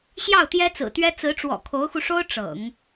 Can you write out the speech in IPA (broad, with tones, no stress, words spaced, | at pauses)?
ɕjɑ˥˩ʊ̯t̪jɛ˥t͡sɹ̩˨˩t̪ɥɛ˥ t͡sɹ̩˧˥ʈ͡ʂwɔ̰˨˩ kʰo˧˥ʊ̯xu˧ʂo˥ʊ̯ ʈ͡ʂɤ̰˨˩˦ŋ